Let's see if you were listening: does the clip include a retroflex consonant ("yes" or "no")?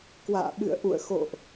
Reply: no